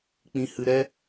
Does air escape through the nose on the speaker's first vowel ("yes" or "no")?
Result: yes